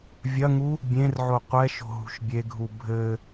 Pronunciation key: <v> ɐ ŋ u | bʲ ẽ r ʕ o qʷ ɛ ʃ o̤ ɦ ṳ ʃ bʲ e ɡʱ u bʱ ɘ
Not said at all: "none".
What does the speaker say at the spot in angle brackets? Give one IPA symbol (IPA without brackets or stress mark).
vʲ